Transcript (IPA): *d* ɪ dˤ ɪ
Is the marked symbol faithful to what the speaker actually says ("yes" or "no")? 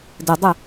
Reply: yes